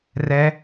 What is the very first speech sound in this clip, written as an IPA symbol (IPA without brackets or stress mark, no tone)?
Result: r